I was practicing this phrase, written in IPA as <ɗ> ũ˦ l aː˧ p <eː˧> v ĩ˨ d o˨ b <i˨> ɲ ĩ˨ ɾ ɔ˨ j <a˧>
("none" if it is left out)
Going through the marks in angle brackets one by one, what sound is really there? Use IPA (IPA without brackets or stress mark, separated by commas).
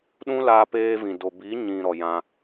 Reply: ɗ, eː˧, i˨˦, ã˧